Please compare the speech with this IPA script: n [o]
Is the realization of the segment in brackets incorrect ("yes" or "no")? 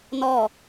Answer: yes